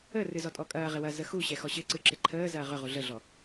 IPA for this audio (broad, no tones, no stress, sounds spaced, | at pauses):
ə r ɨ z ɔ tʼ ɔ kʼ ɐː ʁ ɪ w ɐ z ə x u ɕ ɛ x ɔ ɕ ɪ ǀ ɨ ǁ ɪ ǃʰ əː z ɐː ʁ ʏ ʁ u ɮ ə ɮ ɔ